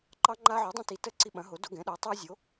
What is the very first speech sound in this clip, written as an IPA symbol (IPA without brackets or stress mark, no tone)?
ǃ